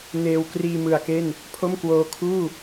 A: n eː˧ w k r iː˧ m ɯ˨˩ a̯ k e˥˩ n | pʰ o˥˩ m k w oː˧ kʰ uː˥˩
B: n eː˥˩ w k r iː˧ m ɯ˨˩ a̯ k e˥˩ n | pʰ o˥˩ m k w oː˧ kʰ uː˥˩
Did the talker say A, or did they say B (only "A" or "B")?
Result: A